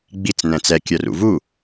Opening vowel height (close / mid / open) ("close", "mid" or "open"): close